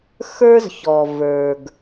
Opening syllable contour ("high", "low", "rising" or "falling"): high